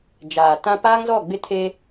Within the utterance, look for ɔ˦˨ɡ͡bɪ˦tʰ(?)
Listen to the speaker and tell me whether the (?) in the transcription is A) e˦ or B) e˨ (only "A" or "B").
A